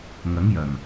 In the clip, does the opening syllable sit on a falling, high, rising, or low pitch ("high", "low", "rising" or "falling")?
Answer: rising